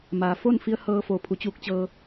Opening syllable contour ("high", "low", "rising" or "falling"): low